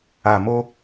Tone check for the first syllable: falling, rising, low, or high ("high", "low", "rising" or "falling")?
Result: low